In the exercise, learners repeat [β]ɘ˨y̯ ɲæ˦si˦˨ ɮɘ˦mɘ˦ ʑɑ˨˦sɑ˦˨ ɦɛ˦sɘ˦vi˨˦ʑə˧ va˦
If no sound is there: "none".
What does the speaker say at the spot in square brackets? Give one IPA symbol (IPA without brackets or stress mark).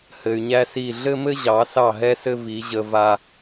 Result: h